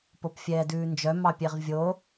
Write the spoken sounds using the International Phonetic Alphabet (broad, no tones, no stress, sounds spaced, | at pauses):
p o p fʲ ɛː d ʉː n d͡ʒ œ m ɑ pʲ e ʁ vʲ o